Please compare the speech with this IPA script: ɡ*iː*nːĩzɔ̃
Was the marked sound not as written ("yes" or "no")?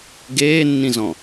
yes